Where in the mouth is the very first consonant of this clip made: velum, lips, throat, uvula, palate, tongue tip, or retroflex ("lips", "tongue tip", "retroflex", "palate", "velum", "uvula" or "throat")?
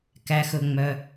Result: velum